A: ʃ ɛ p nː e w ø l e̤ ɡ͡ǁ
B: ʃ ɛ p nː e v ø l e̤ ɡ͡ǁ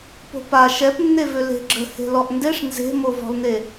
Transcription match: B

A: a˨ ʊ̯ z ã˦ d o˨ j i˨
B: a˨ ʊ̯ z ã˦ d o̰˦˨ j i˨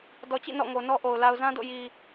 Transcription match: B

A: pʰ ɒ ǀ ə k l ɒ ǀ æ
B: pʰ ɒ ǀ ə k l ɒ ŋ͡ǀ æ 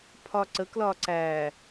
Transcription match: A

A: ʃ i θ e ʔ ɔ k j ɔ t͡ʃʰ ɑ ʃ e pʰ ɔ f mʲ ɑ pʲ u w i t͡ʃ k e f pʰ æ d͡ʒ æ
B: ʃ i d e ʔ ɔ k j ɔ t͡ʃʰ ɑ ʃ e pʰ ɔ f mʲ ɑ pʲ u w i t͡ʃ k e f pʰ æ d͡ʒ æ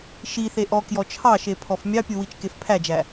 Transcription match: A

